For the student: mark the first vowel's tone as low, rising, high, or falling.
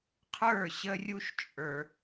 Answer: falling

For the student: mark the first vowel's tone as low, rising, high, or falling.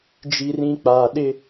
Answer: low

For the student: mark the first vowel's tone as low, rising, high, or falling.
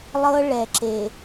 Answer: high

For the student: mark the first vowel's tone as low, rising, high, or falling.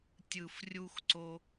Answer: low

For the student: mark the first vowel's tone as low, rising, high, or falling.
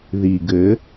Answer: low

